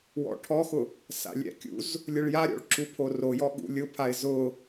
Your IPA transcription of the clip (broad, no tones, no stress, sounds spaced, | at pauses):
w ɔ̰ ʈʰ ɔ x ʊ | s a̰ lʲ ɛ̰ kʲ ṵ z | lʲ ʊ ɭ j a ɾʲ ɔ̰ ɭ ǁ u pʰ o r o j ɔ ɠ ṵ lʲ ʊ pʰ a ɪ̯ z ʊ